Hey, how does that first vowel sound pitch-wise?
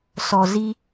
low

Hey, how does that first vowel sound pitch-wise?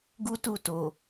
high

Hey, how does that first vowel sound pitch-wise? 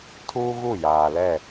high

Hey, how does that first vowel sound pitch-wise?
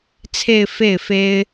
falling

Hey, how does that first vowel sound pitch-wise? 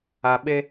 low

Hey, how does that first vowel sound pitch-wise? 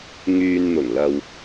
low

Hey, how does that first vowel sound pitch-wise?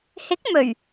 rising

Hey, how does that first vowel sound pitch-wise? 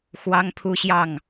high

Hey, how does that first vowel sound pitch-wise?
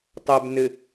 low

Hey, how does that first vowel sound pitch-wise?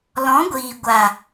rising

